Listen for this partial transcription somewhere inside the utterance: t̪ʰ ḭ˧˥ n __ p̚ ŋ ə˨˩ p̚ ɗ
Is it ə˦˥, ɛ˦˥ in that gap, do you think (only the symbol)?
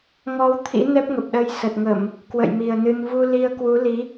ɛ˦˥